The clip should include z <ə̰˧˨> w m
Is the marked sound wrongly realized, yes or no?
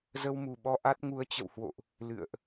yes